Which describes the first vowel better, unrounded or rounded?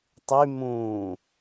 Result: rounded